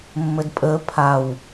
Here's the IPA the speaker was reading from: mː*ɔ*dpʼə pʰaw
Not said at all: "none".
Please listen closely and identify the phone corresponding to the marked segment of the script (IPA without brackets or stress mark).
ə